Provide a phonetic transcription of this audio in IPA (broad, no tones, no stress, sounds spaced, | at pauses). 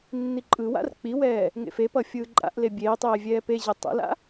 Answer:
nː i ǃʼ ɯ w a̰ r k͡p i w ɛː | ŋ ḛ f e p ʌ fʲ ɯː ǃʼ a̰ ʔ l e bʲ eː tˤ eː vʲ ɛː p e ʑ e tˤ ɛ̰ l a̰